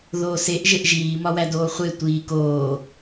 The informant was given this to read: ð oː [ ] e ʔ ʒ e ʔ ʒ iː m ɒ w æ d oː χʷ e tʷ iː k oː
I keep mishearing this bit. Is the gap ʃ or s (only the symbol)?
s